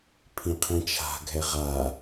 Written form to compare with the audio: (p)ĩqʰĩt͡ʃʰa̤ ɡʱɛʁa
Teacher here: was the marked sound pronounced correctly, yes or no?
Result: no